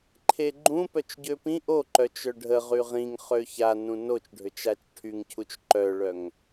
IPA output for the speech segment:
ǃʰ e ɡ͡ǃ ũ p œ t͡ʃ ɟ ø p ĩ ʔ o ǃ œ t͡ʃ œ ɖʱ ə ʁ y ʁ ĩ ŋ χ ø ç a n ũ n o t͡ʃ ɖʱ ø t͡ʃ a t͡ʃ ʈʰ y ŋ cʰ u t͡ʃ ǃ œ ɭ œ ŋ

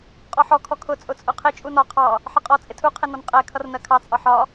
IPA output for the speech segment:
qʼ ɔ ħ ɔ kʰ ɔ kʰ ʊ t͡sʼ ʊ t͡sʼ ʊ qʰ ɪ t͡ʃʼ u n ɒ qʰ ɑ | ħ ə qʼ ɔ t͡sʼ ɪ tʰ u qʰ ɪ n ɔ n qʼ ɛ kʰ ʌ r n ɜ kʰ ɑ t͡sʼ ɒ ħ ɒ

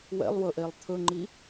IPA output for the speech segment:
w ɛ̰ lˠ w ɵ ʔ e lˠ t̪ʰ ɵ ŋ͡ǃ i

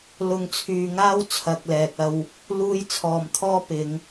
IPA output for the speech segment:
l ʊ˨ ŋ t͡sʰ yː˨ ŋ aː˥ w t͡sʰ ɐ˨ k̚ l ɛː˨ k̚ ɐ˧ w | l uː˧ j t͡sʰ ɔː˨ m t̪ʰ ɔː˥ p ɪ˨˧ ŋ

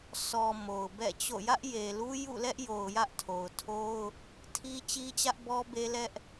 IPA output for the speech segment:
sʰ ɔ˨ m o˨ ʊ̯ b ɛ̰˦˨ t͡ɕ o̰˦˨ j ä˦ ʔ j e˨ l u˦ j ṵ˦˨ l ɛ˦ ʔ j o˨ ʊ̯ j ä˦ ʔ tʰ o˨ ʊ̯ tʰ o˦ ʊ̯ | tʰ i˦ t͡ɕ i˦ t͡ɕ ä˦ ʔ b ɔ˦ b e˦ l ɛ˦ ʔ

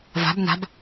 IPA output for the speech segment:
v a̤ b n a̤ b

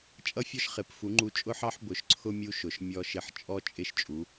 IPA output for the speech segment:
t͡ʃʼ ʌ˥ fʲ ɔ˥ ʃ χ ɪ˩˥ p f u˩˥ ŋ͡ǃ u˧ t͡ʃʼ ʊ˥ ħ ɑ˥ ħ b ʊ˩˥ ʃ ǀʰ ʊ˥ mʲ u˧ ʃ ʊ˩ ʃ mʲ ɔ˥ ʃ ɪ˥˩ ħ t͡ʃʼ ɔ˥ t͡ʃʼ ɪ˥˩ ʃ t͡ʃʼ u˩˥

